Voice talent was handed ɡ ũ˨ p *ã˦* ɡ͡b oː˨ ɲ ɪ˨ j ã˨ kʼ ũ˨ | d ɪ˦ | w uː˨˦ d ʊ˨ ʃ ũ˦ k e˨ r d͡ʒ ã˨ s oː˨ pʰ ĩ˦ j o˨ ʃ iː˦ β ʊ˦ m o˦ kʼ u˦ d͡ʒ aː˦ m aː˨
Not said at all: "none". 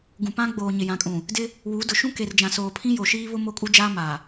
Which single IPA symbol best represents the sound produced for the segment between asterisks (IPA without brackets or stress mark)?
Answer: ã˦